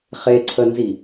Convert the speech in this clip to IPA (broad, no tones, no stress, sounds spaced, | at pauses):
χ e ǀʰ ə n z i